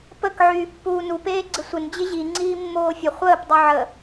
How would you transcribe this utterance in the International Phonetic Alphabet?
pək ʕyːpːuːnu peːɡ͡ǀɪsʷɪn d͡ʑɪʑi ŋ͡ǀiːmːoːfʲə χʷəːp dˤʉʕə

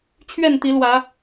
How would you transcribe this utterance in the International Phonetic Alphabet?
t͡ɕʰɥɛ˥˨nt̪i˨˦lwä˨˦

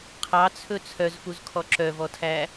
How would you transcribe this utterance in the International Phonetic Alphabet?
qʰɑt͡sʰɵ t͡sʰœzfuzkʰɔ ǁœvɔtʰæ

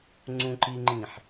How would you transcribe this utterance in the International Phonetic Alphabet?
ŋ͡ǀũǃiŋ͡ǃĩħ

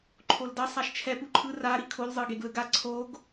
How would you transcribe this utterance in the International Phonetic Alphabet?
ǃʰoldʌ sˤaʃt͡ʃʰɛ puǃʰɯ ra ɾikʰol zˤɯɡeɡlɯɡa ǀʰoɡ

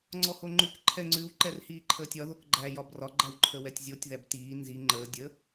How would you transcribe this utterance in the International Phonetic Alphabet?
ŋ͡ǀɔhoŋ͡ǃʉk ǃʰɛŋ͡ǀʉw ǃɛrhiːǃʰəːtʲɒ ðokɡ͡ǃæ jɒbrɒ ɡ͡ǃæwǃʰəwɛtʲzʲotʲ ðæbtiː nzi ŋ͡ǃəː dʲə

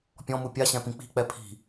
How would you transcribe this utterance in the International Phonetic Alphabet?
pʲɔ̃mu pʲaɕɛ̃pĩ k͡pi̤k͡pɛ pʰi̤

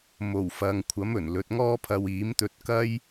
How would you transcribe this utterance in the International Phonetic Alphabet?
mo˨˩wfɐ˨ŋ kʷʰɐ˨˥mɵ˨˩n lɵ˨˥t̚ŋɔː˥pʰɐ˧w iː˨˥mt̪ɵ˧t̚kɐ˥j

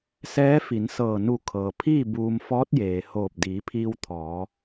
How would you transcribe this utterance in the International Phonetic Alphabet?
sɛː˧˥fi˩˧nsɤː˧˩ nu˧˩ kʰɤː˩ pʰiː˥˨ buː˧m fɔː˧˥t̚jeː˩hoː˧˩p̚ diː˩˧pʰiː˧w t̪ʰɔː˩˧

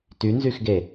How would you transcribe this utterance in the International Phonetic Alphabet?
tynzyxɡe

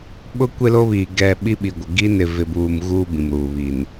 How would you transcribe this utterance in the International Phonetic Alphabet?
ɓʊ˦ kʷe˦lo˦βiː˨ ɡɛ˨ ɓi˦ ɓi˨ɡʷɪ˨ ɡi˦nɪ˨ vɪ˨buː˨m ɣuː˦bĩ˨mɾuː˨ βi˨n

